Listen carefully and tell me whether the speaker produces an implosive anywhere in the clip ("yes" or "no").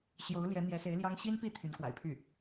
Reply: no